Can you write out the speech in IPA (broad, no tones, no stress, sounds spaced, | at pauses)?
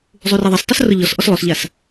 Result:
zˤ u r ɛ ðˤ ɛ s tˤ u s r ʊ ʎ ɔ s ʔ ɔ s lˠ o s ʎ a s